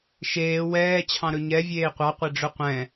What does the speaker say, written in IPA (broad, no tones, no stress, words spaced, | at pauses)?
ʃeː wɛː t͡ɕʰɑ̃ɾɵɲɛ vʲeːqʷɑ qʷeɖ͡ʐɵqʷɛ̃